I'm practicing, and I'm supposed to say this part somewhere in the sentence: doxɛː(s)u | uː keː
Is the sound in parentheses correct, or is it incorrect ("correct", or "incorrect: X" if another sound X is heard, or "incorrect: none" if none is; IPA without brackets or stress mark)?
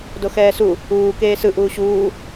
correct